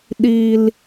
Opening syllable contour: low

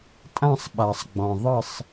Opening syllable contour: falling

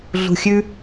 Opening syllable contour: low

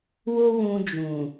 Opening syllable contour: high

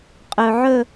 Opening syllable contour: low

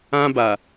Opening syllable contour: high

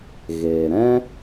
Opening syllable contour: low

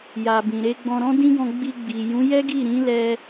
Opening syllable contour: low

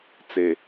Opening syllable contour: low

